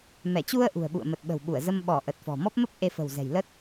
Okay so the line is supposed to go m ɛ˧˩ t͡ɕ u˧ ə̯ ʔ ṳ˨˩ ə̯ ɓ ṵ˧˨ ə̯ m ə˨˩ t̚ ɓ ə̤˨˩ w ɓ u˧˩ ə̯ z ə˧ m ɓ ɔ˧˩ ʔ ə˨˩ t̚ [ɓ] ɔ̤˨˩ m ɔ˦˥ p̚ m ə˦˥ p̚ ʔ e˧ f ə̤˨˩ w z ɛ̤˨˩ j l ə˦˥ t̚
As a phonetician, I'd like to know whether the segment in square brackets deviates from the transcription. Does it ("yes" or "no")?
yes